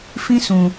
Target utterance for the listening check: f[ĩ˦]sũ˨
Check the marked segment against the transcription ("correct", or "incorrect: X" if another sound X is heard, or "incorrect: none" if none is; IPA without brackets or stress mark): correct